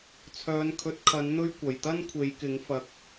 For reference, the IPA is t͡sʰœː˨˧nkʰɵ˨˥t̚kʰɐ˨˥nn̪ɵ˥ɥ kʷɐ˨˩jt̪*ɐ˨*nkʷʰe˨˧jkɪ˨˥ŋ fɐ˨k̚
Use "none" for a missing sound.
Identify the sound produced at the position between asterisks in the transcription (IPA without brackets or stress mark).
ɐ˥